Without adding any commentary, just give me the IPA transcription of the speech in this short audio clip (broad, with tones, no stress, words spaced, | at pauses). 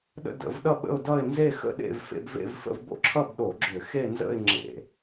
ɗə̰˥˧də̰˧˩˧vɗʌ˥˧ ɓə̰˥˧ʊ̯dʌ˥˧ɪ̯ nze˥˧ xə̰˥˧ ɗḛ˥˧vfḛ˥˧bvḛ˥˧vfə̰˥˧v bo̰˥˧ǁʰʌ˥˧b ɗo˧˩˧ɡ͡ǁʏ˧˩˧xe˥˧nzə̰˥˧ɪ̯ ŋ͡ǁḛ˧˩˧